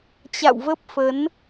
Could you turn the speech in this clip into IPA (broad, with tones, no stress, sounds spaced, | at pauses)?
t͡ɕ a̰˧˨ w v ə˦˥ p̚ f ə˨˦ n